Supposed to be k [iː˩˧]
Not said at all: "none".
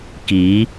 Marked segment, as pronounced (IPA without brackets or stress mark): iː˩˧